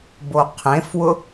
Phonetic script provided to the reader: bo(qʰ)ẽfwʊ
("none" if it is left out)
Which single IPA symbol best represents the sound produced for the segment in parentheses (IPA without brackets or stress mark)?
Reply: qʰ